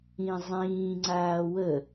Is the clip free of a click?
no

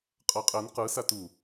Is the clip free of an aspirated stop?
yes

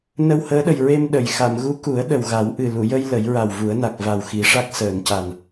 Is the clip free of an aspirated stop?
yes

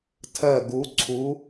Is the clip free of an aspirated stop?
no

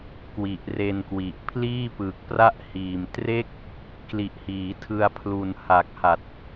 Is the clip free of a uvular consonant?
yes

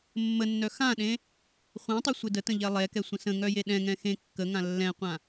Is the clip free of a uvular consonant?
no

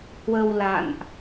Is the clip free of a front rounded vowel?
yes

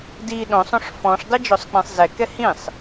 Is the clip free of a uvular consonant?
yes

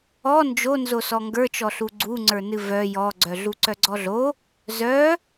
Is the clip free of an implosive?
yes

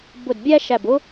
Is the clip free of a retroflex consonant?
yes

